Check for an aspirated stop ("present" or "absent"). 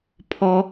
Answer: present